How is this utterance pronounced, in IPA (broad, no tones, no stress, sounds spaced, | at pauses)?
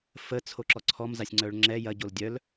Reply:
f ə t͡sʰ o ǁ ɔ ǀʰ ɔ m z a sʲ ŋ͡ǀ œ ɭ ŋ͡ǁ ɛ j ɐ ɟ o l dʲ œ l